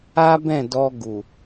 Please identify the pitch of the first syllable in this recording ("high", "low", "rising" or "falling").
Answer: high